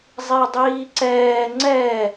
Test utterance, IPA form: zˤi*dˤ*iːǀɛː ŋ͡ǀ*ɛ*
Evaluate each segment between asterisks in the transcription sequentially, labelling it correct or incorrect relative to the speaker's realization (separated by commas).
correct, correct